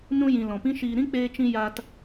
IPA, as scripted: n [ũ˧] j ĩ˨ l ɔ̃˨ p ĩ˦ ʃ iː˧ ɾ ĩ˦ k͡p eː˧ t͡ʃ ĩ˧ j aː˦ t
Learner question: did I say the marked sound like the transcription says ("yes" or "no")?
yes